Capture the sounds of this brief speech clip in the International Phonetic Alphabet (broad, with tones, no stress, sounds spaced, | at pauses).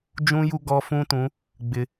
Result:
d͡ʒ ũ˦ j u˦ ɡ ɔ˦ f ũ˦ t ũ˨˦ | ɡ͡b ɪ˦